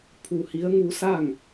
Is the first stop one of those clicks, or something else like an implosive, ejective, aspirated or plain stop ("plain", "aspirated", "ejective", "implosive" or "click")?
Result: aspirated